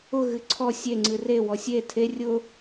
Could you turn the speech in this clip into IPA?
ʊ ɣ ɨ ǀʰ ɔ sʲ e ŋ͡ǀ ɨ r e w ɔ sʲ e tʰ e rʲ ʊ

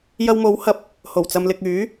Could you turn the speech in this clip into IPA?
j ɐ˧ w m o˨˥ w h ɐ˨ p̚ | h o˨˩ w t͡s ɐ˨ m l ɪ˨ k̚ yː˨˥

